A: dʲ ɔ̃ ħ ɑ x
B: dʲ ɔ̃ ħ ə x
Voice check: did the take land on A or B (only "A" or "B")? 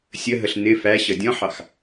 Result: A